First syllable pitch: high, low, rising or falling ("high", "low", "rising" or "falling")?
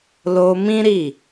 high